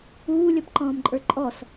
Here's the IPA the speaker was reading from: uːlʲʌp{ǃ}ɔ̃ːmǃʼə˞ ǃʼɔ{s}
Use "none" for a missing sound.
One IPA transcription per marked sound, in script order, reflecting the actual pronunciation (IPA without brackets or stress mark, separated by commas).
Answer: ǃ, s